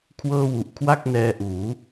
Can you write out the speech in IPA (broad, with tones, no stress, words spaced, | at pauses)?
kʰwɤː˥˩wu˨˩ʔ kʰwa˥˩k̚nɛː˧ʔuː˩˦